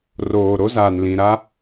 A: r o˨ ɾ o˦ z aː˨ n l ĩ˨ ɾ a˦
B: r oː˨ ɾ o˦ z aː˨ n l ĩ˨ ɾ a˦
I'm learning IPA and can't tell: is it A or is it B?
B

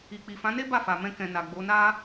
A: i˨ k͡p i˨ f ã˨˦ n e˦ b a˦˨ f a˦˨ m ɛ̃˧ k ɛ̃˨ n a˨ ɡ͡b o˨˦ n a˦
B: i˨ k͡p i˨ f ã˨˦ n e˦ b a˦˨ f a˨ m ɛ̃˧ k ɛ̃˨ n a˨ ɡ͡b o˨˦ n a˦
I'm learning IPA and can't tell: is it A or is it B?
B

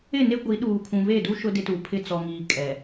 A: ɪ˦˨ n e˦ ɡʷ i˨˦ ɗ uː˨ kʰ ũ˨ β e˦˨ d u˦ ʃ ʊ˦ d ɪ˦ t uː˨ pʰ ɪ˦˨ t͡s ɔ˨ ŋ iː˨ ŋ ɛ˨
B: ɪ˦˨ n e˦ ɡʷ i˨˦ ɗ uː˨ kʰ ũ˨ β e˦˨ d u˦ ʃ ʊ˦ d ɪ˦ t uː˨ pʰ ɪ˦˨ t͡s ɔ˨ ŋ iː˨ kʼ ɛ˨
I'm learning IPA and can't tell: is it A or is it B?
B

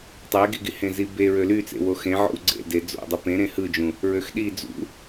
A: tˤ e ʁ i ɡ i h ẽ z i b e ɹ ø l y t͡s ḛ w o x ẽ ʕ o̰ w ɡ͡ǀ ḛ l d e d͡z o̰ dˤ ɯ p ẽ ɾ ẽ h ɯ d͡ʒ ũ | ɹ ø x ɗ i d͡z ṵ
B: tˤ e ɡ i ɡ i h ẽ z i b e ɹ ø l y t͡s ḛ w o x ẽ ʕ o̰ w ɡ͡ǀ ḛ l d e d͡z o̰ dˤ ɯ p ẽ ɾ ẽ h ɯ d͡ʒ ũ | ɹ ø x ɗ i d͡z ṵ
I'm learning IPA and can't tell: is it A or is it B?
B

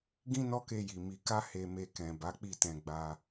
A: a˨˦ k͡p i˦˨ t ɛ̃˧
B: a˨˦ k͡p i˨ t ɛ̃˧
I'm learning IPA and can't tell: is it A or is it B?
A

